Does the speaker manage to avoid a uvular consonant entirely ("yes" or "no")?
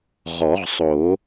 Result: no